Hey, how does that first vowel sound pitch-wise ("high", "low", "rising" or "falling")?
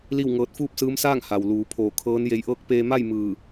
falling